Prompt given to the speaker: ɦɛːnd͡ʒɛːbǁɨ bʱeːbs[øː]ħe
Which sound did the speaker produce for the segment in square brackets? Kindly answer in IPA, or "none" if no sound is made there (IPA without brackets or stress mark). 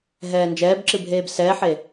ɛː